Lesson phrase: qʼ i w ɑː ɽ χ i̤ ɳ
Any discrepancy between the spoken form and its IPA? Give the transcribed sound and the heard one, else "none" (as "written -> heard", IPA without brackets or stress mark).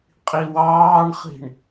ɽ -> ɳ